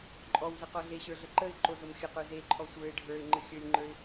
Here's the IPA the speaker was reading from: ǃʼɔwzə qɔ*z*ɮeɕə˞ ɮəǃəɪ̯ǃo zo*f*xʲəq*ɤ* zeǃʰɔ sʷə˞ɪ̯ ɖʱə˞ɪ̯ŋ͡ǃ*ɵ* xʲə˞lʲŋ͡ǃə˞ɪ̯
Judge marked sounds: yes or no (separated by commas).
no, no, no, no